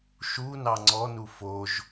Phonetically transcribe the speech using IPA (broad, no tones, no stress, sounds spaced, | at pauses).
ʃ u n ɑ ŋ͡ǀ ɔ n u f o ʒ